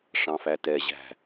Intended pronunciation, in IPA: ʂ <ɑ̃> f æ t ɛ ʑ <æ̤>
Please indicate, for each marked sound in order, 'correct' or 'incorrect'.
correct, correct

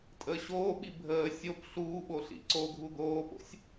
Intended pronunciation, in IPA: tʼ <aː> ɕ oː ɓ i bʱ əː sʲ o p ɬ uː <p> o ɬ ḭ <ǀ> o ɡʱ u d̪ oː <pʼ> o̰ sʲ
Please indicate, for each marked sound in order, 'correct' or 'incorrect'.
incorrect: əː, incorrect: ɓ, correct, incorrect: p

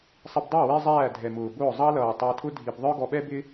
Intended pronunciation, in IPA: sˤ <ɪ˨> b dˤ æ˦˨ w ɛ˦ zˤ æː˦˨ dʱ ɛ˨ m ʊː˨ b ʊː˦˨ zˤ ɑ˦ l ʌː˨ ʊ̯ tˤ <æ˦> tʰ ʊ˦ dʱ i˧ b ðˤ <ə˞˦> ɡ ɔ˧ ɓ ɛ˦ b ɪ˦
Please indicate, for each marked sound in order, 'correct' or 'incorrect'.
incorrect: ɪ˧, incorrect: æ˧, correct

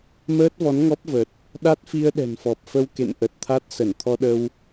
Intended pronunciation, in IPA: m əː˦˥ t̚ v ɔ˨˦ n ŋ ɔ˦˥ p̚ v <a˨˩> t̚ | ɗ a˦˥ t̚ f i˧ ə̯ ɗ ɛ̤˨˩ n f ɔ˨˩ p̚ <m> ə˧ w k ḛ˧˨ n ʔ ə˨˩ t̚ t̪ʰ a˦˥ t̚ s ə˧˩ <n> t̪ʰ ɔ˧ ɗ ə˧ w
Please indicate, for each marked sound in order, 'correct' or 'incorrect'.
incorrect: ə˨˩, incorrect: f, correct

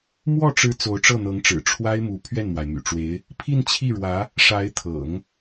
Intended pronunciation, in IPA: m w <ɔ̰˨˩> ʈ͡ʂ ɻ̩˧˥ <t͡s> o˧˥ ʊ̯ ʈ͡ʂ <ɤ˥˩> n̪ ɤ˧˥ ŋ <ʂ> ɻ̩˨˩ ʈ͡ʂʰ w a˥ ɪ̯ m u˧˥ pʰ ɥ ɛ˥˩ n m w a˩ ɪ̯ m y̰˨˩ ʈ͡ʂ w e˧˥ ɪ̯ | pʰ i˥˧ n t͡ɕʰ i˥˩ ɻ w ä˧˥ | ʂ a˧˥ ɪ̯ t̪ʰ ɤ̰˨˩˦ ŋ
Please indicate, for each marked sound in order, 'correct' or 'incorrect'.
incorrect: ɔ˥˩, correct, correct, incorrect: ʈ͡ʂ

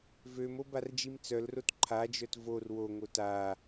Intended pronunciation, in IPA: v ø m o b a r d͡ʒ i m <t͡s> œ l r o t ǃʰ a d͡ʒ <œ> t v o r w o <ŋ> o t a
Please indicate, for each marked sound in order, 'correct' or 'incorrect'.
correct, correct, correct

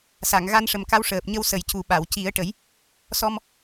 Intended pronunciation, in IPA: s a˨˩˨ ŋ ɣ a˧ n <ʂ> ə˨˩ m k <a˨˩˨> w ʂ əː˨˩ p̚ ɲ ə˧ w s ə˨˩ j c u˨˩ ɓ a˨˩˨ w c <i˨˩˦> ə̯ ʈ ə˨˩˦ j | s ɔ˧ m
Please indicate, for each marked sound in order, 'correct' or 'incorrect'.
correct, incorrect: a˧˥, correct

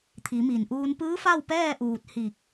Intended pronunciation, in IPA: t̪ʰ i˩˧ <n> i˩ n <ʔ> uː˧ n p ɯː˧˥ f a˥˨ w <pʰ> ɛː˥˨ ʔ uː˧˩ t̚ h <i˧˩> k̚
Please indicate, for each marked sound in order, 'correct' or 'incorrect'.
incorrect: m, correct, incorrect: p, correct

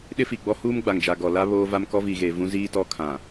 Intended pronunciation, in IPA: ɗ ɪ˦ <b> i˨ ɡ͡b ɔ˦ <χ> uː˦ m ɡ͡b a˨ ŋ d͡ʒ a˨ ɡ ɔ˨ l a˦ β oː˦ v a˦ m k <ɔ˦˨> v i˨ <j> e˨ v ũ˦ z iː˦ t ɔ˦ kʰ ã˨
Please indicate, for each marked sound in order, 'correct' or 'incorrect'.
incorrect: f, incorrect: h, incorrect: ɔ˦, incorrect: ɣ

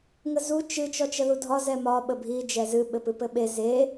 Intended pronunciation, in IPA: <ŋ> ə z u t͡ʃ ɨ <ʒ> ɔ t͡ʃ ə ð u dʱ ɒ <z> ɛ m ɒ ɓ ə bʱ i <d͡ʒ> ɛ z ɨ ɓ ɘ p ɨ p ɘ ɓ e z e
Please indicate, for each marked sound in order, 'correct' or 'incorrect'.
correct, incorrect: t͡ʃ, correct, correct

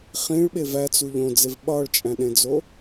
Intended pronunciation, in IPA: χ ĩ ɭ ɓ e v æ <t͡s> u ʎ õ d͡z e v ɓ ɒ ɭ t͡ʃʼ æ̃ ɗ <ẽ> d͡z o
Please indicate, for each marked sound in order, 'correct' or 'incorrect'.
correct, correct

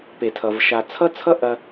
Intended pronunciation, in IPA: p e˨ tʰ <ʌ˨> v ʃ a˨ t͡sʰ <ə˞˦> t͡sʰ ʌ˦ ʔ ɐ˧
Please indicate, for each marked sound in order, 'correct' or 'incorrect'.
correct, incorrect: ʌ˦

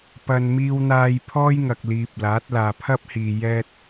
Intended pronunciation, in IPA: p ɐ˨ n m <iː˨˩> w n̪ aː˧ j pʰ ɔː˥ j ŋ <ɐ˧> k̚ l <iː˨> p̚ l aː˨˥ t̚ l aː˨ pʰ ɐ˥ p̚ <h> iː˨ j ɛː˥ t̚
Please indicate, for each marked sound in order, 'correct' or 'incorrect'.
incorrect: iː˧, incorrect: ɐ˨, correct, correct

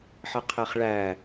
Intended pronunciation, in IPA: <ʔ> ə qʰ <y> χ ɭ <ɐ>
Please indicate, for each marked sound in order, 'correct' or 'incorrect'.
incorrect: ħ, incorrect: e, incorrect: æ

